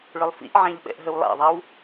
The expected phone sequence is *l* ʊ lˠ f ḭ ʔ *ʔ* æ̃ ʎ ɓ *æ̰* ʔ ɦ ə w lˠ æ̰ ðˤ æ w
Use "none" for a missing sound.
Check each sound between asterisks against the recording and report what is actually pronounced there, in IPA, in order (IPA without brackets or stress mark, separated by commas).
ɭ, ʕ, ɛ̰